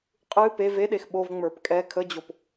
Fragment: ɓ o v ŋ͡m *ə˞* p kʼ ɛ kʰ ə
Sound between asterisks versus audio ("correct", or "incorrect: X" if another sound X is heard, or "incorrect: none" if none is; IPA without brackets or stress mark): correct